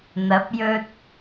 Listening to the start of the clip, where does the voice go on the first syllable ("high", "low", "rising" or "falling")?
rising